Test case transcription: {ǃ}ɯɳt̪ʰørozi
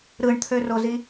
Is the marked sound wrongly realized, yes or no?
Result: yes